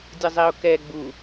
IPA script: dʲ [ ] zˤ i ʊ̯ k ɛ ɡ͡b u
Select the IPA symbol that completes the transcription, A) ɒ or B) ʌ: B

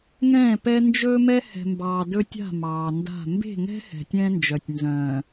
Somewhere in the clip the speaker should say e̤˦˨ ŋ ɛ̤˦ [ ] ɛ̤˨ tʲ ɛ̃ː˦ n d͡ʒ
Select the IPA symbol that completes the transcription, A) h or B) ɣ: A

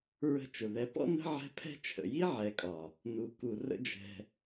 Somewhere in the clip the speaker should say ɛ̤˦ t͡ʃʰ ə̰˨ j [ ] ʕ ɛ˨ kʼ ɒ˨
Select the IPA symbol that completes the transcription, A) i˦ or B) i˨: A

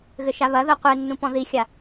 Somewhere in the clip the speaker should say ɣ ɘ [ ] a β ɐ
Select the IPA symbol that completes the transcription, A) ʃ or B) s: A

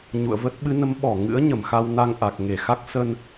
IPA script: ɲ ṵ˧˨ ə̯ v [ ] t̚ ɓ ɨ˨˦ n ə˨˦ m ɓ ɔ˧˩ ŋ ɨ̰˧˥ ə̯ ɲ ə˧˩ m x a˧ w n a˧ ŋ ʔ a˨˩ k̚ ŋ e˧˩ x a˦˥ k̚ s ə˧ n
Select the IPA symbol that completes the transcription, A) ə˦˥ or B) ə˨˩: A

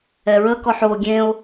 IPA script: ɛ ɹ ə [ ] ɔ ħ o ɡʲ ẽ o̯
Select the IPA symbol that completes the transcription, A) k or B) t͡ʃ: A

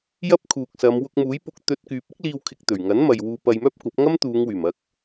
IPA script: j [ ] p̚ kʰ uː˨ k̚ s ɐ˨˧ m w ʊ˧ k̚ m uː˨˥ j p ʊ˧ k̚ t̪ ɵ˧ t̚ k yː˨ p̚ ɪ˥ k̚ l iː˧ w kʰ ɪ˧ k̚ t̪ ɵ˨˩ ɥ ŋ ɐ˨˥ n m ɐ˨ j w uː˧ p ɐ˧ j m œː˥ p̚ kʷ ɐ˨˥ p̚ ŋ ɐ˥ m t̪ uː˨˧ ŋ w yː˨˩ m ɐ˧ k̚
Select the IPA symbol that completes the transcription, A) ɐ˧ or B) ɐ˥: B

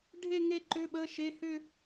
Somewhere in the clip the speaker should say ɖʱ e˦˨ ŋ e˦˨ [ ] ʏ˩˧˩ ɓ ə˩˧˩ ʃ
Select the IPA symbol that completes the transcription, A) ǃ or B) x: A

